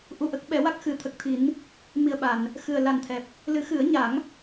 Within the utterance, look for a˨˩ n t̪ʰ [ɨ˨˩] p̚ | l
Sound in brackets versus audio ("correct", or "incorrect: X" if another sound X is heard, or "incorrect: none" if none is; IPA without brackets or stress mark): incorrect: ɛ˨˩